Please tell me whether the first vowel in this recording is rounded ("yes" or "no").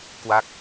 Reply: no